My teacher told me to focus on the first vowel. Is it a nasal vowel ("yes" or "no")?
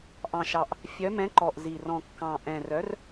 yes